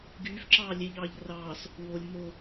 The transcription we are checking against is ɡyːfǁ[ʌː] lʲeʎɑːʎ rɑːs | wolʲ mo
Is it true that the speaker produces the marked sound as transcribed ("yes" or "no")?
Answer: no